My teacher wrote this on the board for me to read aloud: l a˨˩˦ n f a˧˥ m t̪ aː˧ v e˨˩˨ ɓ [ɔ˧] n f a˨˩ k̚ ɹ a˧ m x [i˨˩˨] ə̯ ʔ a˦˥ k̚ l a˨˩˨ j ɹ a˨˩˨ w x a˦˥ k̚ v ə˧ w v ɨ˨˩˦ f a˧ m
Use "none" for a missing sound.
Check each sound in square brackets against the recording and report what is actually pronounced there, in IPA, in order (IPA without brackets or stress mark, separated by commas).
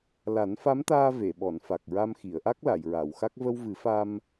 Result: ɔ˨˩˨, i˨˩˨